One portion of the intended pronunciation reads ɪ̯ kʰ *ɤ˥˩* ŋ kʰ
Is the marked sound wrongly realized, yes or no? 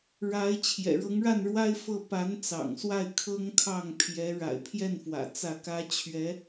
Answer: yes